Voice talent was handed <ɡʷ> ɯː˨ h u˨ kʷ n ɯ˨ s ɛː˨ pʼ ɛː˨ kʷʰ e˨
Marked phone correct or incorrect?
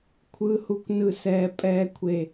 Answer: incorrect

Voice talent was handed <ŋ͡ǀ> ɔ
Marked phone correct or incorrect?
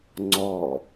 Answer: correct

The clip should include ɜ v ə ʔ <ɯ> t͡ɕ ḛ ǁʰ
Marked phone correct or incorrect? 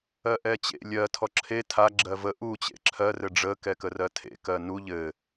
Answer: incorrect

